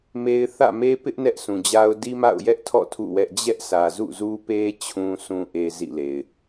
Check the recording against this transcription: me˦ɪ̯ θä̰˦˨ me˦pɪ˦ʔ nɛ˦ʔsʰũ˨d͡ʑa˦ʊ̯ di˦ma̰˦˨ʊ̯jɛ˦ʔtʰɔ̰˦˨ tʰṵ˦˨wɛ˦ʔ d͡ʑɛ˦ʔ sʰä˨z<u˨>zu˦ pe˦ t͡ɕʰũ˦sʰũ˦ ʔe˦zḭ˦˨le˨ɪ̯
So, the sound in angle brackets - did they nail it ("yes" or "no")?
no